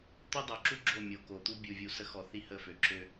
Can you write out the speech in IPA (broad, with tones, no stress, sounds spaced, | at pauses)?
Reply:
t̪ o˦ dˤ o˨ ǁ u˦ ɡ͡ǁ o˦˨ mʲ o˨ k o˨ t̪ u˦ bʲ u˨ vʲ u˨ s ə˦ x ɔ˨ θ i˦ h ə˦˨ f ø˨ ǁ ø˦